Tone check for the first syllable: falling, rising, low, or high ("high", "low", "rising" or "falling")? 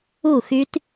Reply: falling